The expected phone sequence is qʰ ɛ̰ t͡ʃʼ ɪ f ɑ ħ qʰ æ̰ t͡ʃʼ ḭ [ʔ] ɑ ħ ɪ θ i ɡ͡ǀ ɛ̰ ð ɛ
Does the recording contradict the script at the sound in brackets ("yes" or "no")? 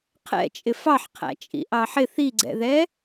no